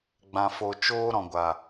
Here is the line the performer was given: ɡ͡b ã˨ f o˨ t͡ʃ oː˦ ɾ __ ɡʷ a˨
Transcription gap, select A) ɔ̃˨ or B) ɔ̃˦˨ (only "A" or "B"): A